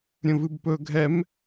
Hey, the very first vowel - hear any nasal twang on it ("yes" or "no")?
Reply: yes